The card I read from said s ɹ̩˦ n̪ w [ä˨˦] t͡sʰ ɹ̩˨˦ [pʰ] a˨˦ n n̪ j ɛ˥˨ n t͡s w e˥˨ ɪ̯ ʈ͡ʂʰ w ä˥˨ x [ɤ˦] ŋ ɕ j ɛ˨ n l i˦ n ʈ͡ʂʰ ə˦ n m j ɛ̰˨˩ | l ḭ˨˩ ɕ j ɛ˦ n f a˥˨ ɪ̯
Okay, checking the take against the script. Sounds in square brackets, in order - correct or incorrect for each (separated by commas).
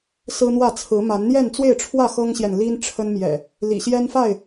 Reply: incorrect, incorrect, correct